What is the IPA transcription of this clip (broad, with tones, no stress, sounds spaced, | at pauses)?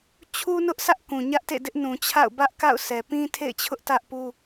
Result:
t͡ɕʰ u˦ n ʊ˦ ʔ sʰ ä˦ ʔ k ũ˨ ɲ ä˦ ʔ t ḛ˦˨ d ɪ˦ ʔ n ũ˨ t͡ɕʰ a̰˦˨ ʊ̯ b ä˦ ʔ k a̰˦˨ ʊ̯ s ɛ˨ p ĩ˦ tʰ ḛ˦˨ ɪ̯ t͡ɕʰ ʊ˦ ʔ t ä˦ ʔ p u˦